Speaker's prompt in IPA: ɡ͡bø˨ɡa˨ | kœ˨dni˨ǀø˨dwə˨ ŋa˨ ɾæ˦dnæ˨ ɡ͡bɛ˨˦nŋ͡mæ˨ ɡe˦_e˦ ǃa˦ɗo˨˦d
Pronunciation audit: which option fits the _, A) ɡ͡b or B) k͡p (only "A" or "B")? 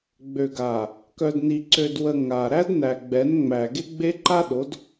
A